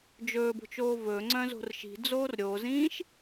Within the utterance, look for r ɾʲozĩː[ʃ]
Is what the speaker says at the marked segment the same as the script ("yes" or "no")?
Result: yes